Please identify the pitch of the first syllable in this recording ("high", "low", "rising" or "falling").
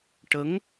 rising